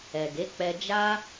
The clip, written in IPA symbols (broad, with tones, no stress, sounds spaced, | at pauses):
ɛ˨ ɡ e˨˦ k͡p ɛ˧ d͡ʒ a˦